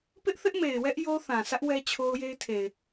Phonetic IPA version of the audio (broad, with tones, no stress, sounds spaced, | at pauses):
p ɪ˦ ʔ θ ɪ˦ ʔ m e˨ ɪ̯ w ɛ˦ ʔ j o˦ θ ã˨ sʰ ä˦ ʔ w ɛ˦ t͡ɕʰ o˦ ʊ̯ j e˦ ɪ̯ tʰ e˨ ɪ̯